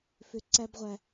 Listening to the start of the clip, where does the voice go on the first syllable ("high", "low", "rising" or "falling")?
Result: low